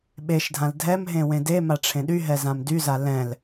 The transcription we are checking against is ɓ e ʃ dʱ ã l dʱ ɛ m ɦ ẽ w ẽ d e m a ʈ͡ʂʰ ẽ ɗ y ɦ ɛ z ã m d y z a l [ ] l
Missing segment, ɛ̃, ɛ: ɛ̃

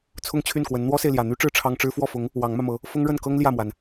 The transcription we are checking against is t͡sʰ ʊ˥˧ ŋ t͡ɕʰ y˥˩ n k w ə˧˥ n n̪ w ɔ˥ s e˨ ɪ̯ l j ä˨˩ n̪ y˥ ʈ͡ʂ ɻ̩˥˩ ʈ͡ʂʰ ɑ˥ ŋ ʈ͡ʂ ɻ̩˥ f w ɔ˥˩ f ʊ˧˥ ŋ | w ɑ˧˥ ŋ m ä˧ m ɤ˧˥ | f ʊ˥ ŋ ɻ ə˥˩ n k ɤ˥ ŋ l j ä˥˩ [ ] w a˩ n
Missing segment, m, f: m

